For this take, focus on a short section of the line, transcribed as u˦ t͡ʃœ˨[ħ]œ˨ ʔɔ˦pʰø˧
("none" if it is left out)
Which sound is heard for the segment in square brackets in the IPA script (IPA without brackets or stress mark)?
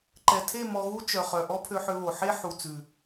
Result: χ